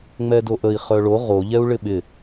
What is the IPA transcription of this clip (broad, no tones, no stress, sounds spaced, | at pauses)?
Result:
ŋ͡m ɛ d o ʔ ə i̯ χ œ ɭ o ʁ o ʎ ɛ u̯ ɭ ɪ ɓ ɪ